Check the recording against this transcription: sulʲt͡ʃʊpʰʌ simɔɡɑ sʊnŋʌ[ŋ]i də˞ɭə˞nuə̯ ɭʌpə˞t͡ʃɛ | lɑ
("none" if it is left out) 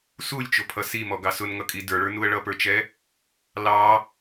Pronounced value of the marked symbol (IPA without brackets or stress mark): kʼ